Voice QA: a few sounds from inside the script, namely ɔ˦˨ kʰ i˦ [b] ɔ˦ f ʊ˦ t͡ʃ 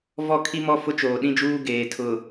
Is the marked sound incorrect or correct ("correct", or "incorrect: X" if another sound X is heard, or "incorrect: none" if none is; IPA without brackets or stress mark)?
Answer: incorrect: m